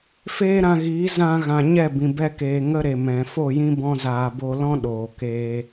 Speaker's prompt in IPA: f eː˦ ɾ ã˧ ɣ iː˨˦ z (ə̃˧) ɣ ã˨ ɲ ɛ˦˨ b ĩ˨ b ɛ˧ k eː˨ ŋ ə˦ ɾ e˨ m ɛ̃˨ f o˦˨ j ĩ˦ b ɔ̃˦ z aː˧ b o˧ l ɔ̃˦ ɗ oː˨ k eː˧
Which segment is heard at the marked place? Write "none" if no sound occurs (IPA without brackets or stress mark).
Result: ã˧